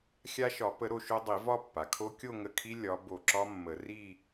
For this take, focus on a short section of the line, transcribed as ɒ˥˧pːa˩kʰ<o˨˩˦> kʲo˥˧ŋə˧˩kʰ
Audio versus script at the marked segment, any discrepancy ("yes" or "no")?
yes